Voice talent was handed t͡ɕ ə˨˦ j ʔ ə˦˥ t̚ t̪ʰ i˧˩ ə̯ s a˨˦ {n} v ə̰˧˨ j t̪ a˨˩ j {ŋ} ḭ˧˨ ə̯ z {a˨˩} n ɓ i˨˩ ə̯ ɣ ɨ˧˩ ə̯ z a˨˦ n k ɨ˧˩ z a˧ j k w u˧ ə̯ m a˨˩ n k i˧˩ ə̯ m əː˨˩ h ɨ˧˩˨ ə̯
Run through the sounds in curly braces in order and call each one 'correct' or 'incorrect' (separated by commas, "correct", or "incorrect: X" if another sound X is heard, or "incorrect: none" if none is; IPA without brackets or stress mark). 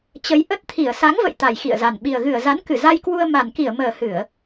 incorrect: ŋ, incorrect: x, correct